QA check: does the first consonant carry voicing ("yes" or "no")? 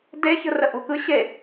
yes